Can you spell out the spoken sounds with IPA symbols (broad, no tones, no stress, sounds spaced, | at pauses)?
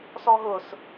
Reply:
s ɔ ɦ ʊ s